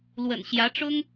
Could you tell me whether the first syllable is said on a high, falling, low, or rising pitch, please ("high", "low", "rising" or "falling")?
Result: low